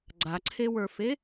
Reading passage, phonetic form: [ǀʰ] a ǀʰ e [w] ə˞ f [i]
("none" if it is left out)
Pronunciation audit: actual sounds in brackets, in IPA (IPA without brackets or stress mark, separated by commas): ɡ͡ǀ, w, e